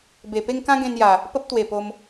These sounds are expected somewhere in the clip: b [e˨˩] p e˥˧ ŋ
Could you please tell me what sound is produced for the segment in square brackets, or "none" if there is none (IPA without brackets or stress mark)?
e˨˩